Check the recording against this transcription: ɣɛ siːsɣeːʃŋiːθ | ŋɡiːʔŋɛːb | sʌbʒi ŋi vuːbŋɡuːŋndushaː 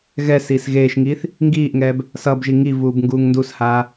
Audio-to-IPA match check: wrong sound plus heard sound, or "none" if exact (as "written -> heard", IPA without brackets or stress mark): none